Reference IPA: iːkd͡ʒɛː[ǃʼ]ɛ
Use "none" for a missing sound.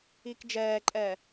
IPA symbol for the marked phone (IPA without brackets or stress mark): ǃʼ